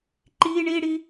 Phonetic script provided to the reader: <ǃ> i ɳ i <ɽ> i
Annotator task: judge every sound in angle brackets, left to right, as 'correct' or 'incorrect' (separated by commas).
correct, correct